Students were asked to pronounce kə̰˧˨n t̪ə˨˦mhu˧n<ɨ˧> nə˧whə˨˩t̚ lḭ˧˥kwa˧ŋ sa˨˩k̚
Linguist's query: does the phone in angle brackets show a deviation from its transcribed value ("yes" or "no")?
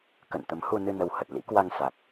no